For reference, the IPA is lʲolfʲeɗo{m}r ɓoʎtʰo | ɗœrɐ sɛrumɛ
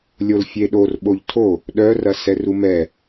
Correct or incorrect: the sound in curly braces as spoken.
incorrect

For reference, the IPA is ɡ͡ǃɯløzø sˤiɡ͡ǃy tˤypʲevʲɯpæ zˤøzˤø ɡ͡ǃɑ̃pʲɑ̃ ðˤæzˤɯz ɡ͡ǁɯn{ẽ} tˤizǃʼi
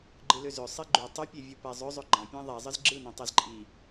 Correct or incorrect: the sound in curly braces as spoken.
correct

